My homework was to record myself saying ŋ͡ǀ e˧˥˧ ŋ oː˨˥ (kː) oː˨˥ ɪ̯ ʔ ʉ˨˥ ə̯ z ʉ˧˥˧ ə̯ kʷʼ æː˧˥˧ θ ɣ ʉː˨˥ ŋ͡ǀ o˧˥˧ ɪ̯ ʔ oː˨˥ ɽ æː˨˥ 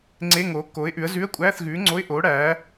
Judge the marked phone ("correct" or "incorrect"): correct